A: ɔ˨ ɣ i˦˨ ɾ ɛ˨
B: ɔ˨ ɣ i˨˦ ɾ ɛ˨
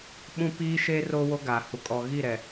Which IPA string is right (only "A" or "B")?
A